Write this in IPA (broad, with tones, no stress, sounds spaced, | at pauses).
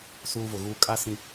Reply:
s uː˦ v ʊ˨ ɣ uː˦ kʼ a˦ s ĩ˨